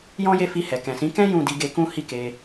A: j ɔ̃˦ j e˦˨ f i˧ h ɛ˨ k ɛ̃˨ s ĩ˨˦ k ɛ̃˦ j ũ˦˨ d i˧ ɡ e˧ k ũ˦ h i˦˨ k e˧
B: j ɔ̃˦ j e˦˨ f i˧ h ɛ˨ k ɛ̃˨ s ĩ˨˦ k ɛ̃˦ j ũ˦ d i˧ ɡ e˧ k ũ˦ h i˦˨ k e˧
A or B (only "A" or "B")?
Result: A